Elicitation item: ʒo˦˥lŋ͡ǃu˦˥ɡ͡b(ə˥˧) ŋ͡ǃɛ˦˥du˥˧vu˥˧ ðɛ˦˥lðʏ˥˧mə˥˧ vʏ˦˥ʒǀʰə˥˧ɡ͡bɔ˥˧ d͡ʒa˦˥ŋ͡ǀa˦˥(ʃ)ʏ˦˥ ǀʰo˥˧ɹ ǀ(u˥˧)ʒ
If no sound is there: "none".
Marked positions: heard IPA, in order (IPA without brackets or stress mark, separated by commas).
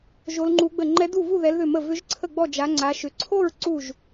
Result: ə˥˧, ʃ, u˥˧